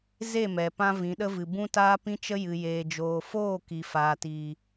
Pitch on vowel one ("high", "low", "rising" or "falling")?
falling